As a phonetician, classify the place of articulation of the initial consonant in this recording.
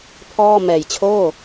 labial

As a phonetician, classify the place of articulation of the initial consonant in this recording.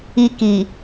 velar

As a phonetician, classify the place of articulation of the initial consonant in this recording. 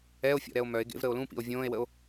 labial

